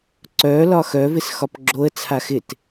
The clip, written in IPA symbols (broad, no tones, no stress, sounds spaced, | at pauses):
ǀ œ l ɒ x œ v ɪ s x ɒ p ɡ͡ǁ o ə̯ t͡sʰ a x ɪ t